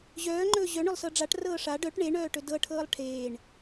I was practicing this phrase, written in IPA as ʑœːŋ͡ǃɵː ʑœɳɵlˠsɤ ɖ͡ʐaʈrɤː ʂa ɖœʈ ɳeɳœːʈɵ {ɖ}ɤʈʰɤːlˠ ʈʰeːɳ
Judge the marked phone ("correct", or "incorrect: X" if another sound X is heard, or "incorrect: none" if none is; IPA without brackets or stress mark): incorrect: d